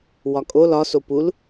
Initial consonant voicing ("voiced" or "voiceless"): voiced